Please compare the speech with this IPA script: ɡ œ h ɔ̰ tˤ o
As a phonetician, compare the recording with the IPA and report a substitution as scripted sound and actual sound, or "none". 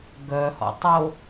none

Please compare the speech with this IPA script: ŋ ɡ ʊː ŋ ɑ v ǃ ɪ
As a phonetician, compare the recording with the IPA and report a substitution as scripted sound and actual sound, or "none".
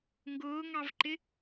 none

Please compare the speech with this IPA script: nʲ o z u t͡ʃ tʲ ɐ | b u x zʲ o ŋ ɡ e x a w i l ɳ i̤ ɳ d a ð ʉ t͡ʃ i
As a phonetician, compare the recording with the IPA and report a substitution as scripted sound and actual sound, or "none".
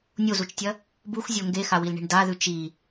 none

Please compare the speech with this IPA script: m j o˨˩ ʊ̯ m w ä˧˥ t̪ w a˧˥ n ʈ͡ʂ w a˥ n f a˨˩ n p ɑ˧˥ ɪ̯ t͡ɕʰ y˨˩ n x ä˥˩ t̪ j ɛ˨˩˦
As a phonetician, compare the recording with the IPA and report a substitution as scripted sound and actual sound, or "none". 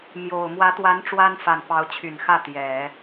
ɪ̯ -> ʊ̯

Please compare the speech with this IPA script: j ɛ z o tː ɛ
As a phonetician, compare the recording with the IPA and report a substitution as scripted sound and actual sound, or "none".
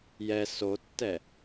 z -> s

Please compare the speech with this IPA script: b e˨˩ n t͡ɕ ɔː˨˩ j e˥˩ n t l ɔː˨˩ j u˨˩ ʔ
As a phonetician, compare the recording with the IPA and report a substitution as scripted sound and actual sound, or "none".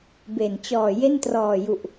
l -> r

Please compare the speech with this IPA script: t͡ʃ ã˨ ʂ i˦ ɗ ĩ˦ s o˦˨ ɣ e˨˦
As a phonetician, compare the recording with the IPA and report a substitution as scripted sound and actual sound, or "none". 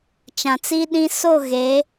ʂ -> t͡s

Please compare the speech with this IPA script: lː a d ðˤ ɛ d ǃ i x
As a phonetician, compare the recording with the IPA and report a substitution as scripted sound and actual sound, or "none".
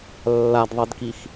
ǃ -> k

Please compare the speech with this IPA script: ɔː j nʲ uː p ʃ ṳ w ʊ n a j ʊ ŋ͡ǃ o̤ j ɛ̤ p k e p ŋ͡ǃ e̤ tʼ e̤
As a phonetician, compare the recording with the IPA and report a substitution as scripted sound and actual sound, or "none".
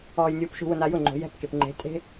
none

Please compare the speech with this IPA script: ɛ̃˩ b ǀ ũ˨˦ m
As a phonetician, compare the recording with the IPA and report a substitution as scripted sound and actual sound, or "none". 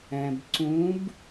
m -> b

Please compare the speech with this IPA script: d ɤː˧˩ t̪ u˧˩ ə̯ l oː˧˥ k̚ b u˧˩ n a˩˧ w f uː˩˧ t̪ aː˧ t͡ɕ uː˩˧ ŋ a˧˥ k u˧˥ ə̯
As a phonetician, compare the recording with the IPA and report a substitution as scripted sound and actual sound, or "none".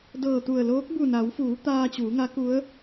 none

